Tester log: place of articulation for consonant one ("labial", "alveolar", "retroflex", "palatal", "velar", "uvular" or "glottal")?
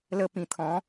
alveolar